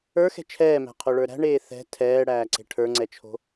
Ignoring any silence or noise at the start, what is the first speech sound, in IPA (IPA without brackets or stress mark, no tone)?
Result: ə˞